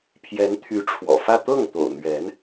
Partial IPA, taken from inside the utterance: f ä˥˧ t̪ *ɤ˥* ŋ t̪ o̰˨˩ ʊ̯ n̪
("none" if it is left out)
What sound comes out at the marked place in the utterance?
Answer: ɤ˥˩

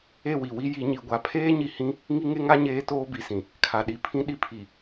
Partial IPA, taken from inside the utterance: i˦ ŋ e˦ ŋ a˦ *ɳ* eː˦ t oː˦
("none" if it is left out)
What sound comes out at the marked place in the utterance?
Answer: ɲ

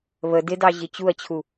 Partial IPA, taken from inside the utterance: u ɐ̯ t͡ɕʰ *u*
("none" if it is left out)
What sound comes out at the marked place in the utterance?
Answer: u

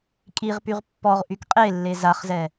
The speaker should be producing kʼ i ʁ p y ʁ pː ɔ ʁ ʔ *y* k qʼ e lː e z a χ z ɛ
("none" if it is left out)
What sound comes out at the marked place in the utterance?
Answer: y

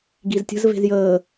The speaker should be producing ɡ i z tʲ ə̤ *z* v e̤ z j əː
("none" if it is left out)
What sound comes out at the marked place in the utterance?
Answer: z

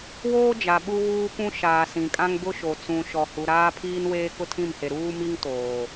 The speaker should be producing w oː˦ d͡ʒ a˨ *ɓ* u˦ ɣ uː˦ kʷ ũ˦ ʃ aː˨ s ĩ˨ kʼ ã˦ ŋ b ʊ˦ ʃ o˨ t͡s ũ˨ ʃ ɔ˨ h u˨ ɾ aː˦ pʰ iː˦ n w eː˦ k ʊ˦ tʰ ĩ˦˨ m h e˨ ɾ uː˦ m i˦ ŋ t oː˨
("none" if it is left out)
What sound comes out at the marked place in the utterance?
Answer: ɓ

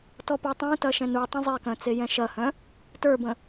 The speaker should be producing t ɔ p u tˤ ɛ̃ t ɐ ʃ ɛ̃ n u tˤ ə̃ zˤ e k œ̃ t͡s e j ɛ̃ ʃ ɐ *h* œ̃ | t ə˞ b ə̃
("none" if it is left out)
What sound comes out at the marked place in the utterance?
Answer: h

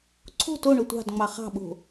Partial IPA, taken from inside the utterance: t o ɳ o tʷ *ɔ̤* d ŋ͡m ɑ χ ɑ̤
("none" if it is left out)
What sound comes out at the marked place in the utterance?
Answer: ɑ̤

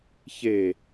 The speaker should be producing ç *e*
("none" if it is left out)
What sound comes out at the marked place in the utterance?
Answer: e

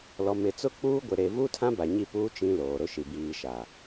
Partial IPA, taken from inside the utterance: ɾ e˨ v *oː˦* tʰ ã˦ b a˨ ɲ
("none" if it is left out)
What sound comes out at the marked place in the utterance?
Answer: uː˦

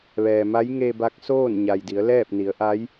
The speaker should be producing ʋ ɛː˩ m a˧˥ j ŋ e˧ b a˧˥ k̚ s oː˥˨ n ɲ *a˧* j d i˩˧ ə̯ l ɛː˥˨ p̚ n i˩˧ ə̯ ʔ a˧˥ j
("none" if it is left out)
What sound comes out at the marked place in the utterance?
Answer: a˩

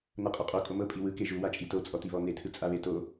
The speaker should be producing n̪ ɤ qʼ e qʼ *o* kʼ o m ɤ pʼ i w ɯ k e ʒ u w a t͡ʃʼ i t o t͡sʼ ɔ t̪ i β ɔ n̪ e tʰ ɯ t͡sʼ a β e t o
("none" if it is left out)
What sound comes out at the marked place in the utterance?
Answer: o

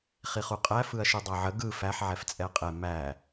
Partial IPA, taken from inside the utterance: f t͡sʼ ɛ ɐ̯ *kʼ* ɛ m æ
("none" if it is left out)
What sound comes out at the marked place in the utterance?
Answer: qʼ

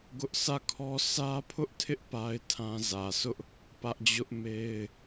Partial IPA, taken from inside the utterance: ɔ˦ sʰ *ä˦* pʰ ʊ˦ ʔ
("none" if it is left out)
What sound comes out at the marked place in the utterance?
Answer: ä˦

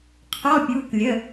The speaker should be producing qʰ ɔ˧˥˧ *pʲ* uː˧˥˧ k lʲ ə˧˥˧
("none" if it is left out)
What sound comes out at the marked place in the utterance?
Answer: pʲ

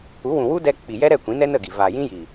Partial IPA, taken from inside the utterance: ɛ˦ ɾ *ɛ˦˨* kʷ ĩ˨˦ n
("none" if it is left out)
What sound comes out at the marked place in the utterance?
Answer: ɛ˦˨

